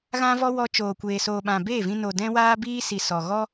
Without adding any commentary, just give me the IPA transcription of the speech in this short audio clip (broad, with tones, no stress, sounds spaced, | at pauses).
ɣ ã˧ v ɔ˧ w ɔ˧ t͡ʃ oː˨ kʷ eː˨ s oː˨ ɓ ã˨ b eː˦˨ v ĩ˧ n o˨ d ɛ̃˧ w aː˦ b iː˦ s i˨ s ɔ˨ ɣ ɔ˦